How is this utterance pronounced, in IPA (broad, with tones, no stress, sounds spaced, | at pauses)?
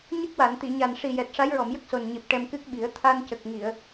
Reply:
ɲ ə˦˥ k̚ w a˨˩˨ n t̪ i˨˩˨ ɲ a˨˩ n ʂ i˨˩ j ɛ˨˩ t̚ ʂ a˧˥ j ɹ ɔ˨˩˨ m j ə˦˥ k̚ s o˨˩ n ɲ i˨˩ p̚ ʈ ɛ˧ m k ɨ˦˥ k̚ ɓ i˨˩˦ ə̯ t̪ʰ a˧ n c ə˨˩ k̚ ŋ i˨˩˨ ə̯